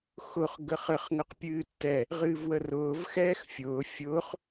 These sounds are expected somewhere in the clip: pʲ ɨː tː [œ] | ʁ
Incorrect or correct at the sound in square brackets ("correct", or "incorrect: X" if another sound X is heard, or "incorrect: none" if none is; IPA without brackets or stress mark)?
incorrect: ɛ